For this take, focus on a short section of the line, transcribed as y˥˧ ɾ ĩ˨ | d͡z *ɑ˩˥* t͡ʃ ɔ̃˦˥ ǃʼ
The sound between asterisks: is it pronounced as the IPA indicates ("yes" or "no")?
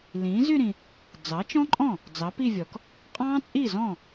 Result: yes